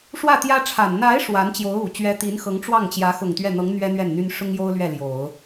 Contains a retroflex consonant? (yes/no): yes